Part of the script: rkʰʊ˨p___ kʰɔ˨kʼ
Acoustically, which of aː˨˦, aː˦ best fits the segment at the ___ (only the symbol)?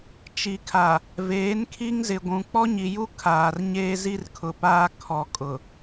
aː˦